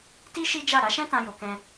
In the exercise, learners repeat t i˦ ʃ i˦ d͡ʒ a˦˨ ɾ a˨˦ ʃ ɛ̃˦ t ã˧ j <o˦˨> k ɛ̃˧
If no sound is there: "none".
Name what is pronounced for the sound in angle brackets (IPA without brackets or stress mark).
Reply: o˨